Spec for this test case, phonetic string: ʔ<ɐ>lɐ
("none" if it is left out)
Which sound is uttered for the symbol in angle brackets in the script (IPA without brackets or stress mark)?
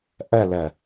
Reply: ɐ